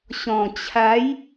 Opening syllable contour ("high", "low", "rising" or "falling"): low